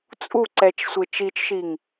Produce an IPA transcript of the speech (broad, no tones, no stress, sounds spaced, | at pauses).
t͡sʼ u ǀ ɛ t͡ʃ sʷ e t͡ʃ i t͡ʃ ʃ i ŋ